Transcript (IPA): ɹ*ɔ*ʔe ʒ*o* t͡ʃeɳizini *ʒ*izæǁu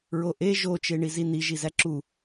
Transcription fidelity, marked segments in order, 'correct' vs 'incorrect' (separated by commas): incorrect, correct, correct